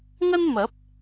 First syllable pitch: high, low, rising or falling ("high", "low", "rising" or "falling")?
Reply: high